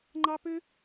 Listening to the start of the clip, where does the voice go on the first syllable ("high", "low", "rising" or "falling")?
high